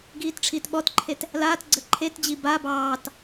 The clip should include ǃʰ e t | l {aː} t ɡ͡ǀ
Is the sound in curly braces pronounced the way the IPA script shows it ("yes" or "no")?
yes